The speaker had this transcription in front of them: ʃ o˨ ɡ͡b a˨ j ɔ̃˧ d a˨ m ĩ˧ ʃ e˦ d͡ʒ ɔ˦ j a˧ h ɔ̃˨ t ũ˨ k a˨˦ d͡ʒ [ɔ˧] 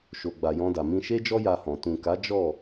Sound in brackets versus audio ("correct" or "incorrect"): incorrect